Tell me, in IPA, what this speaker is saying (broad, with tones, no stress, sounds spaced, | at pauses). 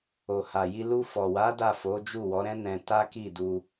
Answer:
o˨ h a˨ j i˧ l u˧ f ɔ˨ w a˨˦ d a˦˨ f o˨˦ d͡ʒ u˦˨ w ɔ˨˦ ɾ ɛ̃˦ n ɛ̃˧ t a˦ k i˦˨ d u˧